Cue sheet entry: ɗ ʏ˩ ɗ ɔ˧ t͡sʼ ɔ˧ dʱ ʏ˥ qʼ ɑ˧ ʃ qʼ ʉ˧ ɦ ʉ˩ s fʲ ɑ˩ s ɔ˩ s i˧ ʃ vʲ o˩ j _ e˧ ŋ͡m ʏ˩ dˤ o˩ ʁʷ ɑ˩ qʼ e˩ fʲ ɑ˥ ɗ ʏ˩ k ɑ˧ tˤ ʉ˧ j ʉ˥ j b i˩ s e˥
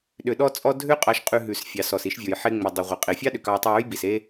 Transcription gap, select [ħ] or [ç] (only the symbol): ħ